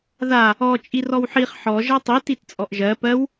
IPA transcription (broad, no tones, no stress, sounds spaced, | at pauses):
ð a | ɔ t͡ʃʼ i r ɔ w ħ i χ ħ ɔ ʒ ɜ tˤ i t i t t͡sʼ ɔ ʔ ʒ ɜ p ɜ w